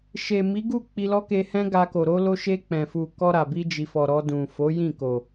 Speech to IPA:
ʃ e˨ m i˨˦ ɡ u˦˨ k͡p i˧ l ɔ˦ k e˧ h ɛ̃˦ ɡ a˧ k o˨ ɾ o˧ l o˧ ʃ e˧ k͡p ɛ̃˨ f u˨ k ɔ˧ ɾ a˨ b i˧ d͡ʒ i˨ f ɔ˨ ɾ ɔ˧ d ũ˨ f o˨˦ j ĩ˦˨ k o˨

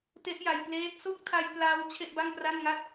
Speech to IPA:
t e˦˥ ʔ j a˧ j p l eː˦˥ t̚ s o˦˥ k̚ tʰ a˧ j p l a˦˥ w t͡ɕʰ e˥˩ ʔ b a˥˩ ŋ p r a˥˩ n ŋ a˥˩ t̚

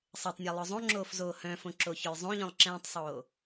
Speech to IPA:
sˤ e tˤ nʲ a lˠ œ zˤ õ ŋ͡ǁ oː f z oː h œ̃ f õ ǁ o ç œ j zˤ õ ʎ œ̃ lˠ ǁ ɛ̃ː tˤ sˤ oː

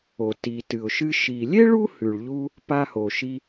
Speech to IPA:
o˩ t i˩ t ɨ˩ ʊ̯ ʃ ɨ˧ ʃ i˩ lʲ e˥ ɭ u˥ h ʉ˩ ɭ ʎ u˧ | p a˧ h o˩ ʃ i˧

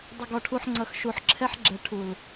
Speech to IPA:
dˤ ə˨ ɡ ɔ˨ ʈʰ u˨ ħ ŋ͡ǀ ʌ˨ x ʃ u˨ ħ ǁʰ ɛ˦ ħ ɡ͡ǁ ɛ˨ ʈʰ u˨ l

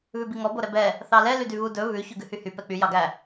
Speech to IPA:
β ʉ b i ŋ ɔ b o ɾ ɛ b ɛ | θ ɑ l ɛ l y d y β u d ɵ β ʉ ç ʉ ɡ ʉ h y h y p ɛ k͡p y j ɑ ɡ æ

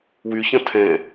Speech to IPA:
w y ç ɐ̃ tʰ ɛ̃

